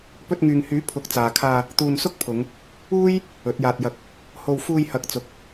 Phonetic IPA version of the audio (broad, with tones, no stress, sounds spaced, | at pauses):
p ɵ˧ t̚ ŋ yː˨ ŋ h yː˨˥ pʰ ʊ˨˥ k̚ t͡s aː˨ kʰ aː˧ | t̪ uː˧ n s ʊ˥ k̚ pʰ ʊ˨˧ ŋ | uː˥ j | ɵ˨˥ t̚ j aː˧ t̚ j ɐ˧ k̚ | h o˧ w f uː˧ j h ɐ˨˥ k̚ t͡s ʊ˨ k̚